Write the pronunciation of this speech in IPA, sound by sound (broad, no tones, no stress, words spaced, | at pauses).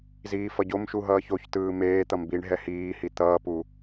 ziːfʌɟomʃu ɦʌːçoçtɯː meː t̪ʌmbiɳɦɛ hiːhi t̪ʌːpu